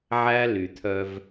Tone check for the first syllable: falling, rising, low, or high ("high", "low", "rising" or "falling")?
high